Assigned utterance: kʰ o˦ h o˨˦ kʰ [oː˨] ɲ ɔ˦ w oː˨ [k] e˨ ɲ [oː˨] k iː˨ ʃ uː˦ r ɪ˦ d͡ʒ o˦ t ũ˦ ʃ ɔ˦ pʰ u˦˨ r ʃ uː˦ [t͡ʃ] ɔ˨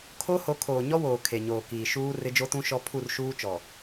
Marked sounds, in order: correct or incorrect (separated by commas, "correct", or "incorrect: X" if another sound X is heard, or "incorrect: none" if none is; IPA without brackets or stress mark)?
correct, incorrect: kʰ, correct, correct